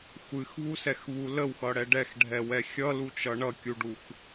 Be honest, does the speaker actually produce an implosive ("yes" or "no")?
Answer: no